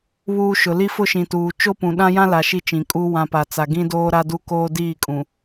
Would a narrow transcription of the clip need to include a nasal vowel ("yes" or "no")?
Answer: yes